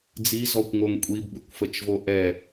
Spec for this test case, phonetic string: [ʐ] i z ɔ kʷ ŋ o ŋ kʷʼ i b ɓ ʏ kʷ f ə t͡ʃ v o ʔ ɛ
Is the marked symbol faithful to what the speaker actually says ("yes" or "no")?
no